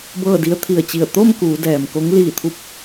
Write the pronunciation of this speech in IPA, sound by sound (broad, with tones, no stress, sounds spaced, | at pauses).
b ɤː˥˨ d i˧˥ ə̯ t̪ʰ i˧˩ ə̯ t͡ɕ i˧˩ ə̯ t̪ o˥˨ m k uː˩˧ d ɛː˩ m k o˧˥ ŋ l iː˧˩ t̪ʰ u˧ p̚